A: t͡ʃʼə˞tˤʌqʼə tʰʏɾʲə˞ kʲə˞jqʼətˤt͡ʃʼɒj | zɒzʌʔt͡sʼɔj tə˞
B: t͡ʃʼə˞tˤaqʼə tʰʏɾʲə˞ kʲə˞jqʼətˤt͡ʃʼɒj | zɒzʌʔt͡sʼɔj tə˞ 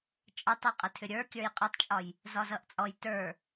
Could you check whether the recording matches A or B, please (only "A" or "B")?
B